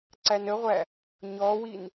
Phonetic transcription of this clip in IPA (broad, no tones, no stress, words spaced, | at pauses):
ǀænəʁʷæ | ɲɔwin